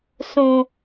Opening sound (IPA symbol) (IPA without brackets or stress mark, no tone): s